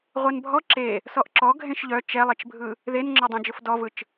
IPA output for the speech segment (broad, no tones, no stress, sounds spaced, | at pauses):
ʁʷ ɛ n bʱ ɔ ǁ e | s ɔ ʔ ǁ ɔ ɡʱ ẽ ʃ ʎ œ t͡ʃ ɛ lˠ e t͡ʃ bʱ ɯ | ð e n ŋ͡ǁ ɔ dˤ õ d͡ʒ ʊ f d ɔ v ɯ t͡ʃ